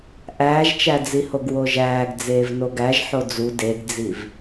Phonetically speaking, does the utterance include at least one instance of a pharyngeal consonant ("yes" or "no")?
yes